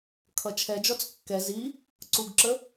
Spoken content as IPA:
kʰ ʌ t͡ʃʰ ɛ d͡ʒ ɔ t͡s kː ɛ z i | ǀ u ɡ ǁ ə

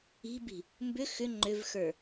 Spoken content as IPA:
i̤ b i̤ | m b ʏ x ʏ ŋ͡ǃ ʏ v x ə˞

